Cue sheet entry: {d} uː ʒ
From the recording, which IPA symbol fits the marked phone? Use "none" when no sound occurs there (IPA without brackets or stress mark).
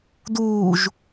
d